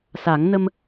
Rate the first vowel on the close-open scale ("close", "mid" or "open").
open